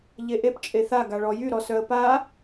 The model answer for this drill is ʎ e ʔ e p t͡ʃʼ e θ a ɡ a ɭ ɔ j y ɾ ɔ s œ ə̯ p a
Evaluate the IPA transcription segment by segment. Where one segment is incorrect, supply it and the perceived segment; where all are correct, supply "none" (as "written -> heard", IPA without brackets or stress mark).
none